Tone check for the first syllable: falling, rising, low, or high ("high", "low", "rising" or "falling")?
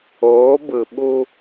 rising